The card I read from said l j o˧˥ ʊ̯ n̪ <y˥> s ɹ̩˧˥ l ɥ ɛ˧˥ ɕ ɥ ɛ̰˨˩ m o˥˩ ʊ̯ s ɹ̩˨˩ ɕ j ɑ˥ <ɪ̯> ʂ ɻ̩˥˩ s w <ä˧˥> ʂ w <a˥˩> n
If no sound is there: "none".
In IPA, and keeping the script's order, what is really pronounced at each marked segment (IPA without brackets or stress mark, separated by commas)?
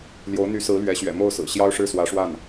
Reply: y˧˥, ʊ̯, ä˧˥, a˥˩